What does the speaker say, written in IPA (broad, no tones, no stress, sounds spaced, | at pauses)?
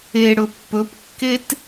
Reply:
e ɽ ɵ pː ɵ p kː e t